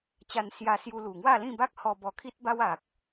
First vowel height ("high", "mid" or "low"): low